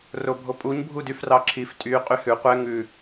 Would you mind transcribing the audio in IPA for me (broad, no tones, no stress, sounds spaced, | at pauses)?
r o bʱ o pʼ u ɲ bʱ u d y f r ɑ ǁʰ i f tʼ y qʼ y h ʉ qʷ ɛ ŋ ʉ